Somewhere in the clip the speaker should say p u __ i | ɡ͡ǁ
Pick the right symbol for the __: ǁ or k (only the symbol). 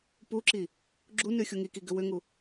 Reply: ǁ